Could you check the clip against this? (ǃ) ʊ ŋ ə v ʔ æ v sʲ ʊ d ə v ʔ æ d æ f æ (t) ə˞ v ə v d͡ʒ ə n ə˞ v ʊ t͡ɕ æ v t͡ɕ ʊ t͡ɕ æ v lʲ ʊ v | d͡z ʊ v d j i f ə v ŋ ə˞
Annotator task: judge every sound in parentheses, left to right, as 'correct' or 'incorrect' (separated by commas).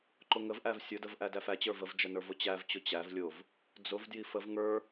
correct, incorrect